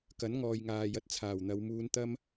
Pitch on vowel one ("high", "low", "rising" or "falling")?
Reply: rising